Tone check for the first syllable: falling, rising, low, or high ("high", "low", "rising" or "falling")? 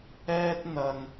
high